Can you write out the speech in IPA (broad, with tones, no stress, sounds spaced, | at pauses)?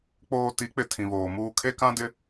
k͡p oː˨ t i˨˦ k͡p ɪ˨ tʰ ĩ˨ β oː˨ m uː˦ kʰ e˦ k ã˦ d ɪ˦